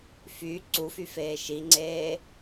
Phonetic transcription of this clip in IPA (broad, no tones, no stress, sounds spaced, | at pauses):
f y ǀ u f y f eː ʃ i ŋ͡ǀ eː